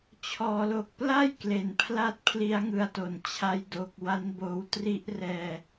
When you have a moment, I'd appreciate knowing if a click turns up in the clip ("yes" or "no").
no